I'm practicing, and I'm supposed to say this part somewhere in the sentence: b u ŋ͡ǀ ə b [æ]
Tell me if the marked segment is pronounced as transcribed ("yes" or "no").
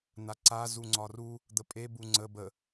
no